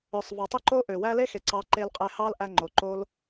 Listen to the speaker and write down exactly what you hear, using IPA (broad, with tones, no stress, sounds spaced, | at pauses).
ø˨ sˤ v ɑ˨ tˤ ø˦ ǃ o˦ ʔ ø˨ w æ˦ l e˦ x e˨ ǀ ɑ˨˦ ǃ e˧ l qʼ e˧ h ɑ˦ l ʔ æ˧ ŋ͡ǃ o˨ ǃ o˦ l